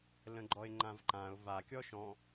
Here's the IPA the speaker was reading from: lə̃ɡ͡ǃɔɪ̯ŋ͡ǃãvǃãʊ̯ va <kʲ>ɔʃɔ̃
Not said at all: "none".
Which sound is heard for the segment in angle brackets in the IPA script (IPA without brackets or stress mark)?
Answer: kʲ